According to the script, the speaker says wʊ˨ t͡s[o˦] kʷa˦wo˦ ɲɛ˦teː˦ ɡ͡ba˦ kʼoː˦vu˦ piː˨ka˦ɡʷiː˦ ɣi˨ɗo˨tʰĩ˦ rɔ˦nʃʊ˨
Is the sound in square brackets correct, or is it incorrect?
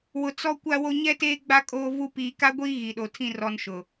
incorrect